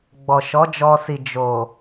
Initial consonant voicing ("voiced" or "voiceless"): voiced